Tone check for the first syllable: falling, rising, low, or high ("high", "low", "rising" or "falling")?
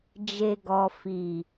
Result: low